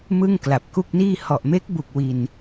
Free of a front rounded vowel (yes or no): yes